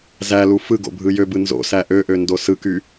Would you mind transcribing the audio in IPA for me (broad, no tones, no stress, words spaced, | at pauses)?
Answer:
zælu fɯɡo̰bʱɯ jøbɯ nzo̰sæ ʔøʔøndo sɯky